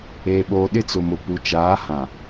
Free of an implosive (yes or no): no